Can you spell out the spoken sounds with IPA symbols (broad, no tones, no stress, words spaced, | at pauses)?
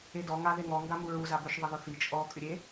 edɔ ŋaðeŋɔ ŋɡamuɹu zabʏʃ ðˤɐðʊθi t͡ʃʼɔ kʼʏɾʲe